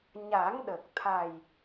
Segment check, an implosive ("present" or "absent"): present